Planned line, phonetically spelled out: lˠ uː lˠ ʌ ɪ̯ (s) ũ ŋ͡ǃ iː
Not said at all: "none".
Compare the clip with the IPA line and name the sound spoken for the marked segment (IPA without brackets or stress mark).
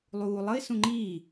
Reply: s